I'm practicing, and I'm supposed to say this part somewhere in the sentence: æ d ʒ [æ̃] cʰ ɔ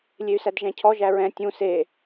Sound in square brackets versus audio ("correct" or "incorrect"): correct